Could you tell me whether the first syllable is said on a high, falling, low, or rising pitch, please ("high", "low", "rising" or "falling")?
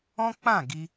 high